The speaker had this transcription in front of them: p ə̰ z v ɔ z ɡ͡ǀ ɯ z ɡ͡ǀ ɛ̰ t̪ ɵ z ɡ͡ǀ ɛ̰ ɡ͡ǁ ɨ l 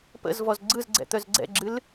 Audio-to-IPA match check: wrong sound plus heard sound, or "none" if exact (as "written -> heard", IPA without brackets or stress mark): ɵ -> œ